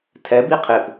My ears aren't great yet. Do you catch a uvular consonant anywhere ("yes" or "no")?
yes